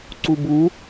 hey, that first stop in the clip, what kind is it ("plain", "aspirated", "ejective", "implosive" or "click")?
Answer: click